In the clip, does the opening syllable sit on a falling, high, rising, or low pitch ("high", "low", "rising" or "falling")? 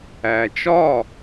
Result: low